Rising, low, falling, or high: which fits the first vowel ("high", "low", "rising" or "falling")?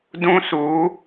high